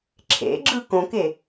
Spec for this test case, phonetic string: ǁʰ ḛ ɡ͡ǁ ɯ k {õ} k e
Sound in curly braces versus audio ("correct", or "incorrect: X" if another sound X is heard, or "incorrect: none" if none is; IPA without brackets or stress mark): correct